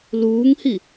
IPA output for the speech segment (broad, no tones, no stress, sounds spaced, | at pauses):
l uː ŋ h i